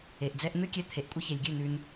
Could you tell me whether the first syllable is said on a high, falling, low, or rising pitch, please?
low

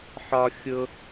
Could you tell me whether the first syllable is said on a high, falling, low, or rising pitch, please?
high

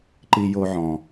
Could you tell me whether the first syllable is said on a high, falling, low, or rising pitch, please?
high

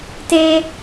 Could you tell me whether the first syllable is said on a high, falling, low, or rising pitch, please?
high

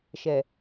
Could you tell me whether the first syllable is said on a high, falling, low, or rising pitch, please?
low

